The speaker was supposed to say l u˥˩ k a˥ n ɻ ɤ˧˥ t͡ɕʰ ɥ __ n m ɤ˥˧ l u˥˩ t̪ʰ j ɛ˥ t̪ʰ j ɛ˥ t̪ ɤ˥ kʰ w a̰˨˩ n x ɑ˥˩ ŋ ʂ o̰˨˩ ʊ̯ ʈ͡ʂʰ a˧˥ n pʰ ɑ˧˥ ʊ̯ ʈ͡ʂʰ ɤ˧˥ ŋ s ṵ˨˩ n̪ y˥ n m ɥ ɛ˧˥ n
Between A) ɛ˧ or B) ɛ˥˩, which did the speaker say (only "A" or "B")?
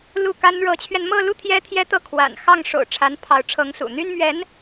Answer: A